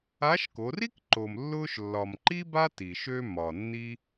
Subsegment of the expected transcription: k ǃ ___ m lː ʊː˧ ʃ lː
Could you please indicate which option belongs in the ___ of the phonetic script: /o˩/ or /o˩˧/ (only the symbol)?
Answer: o˩